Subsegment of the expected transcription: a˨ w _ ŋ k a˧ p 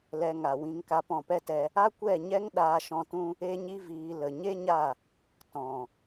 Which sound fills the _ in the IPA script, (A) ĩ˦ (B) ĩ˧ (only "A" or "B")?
B